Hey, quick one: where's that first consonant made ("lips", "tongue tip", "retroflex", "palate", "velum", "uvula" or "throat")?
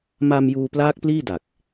lips